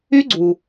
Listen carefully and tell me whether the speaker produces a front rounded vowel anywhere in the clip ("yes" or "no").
yes